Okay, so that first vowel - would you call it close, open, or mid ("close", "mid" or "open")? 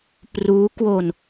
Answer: close